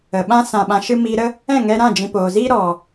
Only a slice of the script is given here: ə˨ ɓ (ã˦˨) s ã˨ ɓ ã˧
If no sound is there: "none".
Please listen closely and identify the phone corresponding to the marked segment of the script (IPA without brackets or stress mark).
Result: ã˦